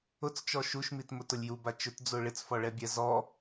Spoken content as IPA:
ʊt͡st͡ʃɔ ʃuʃmit mʊtʊlʲjuba t͡ʃʊtd͡zo ɭɪt͡sfɔɭɛbʲɛ zɔ

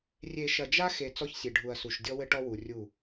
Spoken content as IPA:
rʲe˨ ʃɐ˨d͡ʒa˦xe˨ t͡sɔ˦çsʲe˨ɖʱu˨ɐ̯su˨ʃ dʲɔ˦wɘ˦ʈɔ˦wu˨ rʲu˦˨

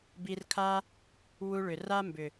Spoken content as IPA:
bi˧rkʰa˦ | wu˧ɭʏ˨ra˦ mbʏ˨

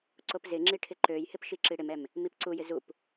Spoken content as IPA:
ǀopzɪŋ͡ǁi ʈʰɪǃøjhɪp ʃiǁiɽɪmɛm | mipǀujɪ zup

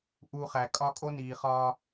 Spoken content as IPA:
ʔu˨ χæ˨ kʼɒ˦ kʼo˦niː˨χɒː˦

